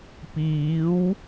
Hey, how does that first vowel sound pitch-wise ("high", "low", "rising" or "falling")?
rising